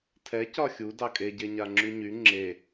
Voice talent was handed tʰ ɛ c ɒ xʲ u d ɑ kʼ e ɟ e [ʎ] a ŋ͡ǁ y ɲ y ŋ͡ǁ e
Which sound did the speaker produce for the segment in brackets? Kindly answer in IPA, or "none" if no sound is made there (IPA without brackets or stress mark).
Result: ɲ